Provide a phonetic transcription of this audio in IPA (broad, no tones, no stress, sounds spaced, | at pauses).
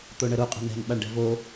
t̪ o ɳ ə ɾ u qʼ ə̤ n ɛ̤ n ɓ a ɳ ɖ ɛ̤ v o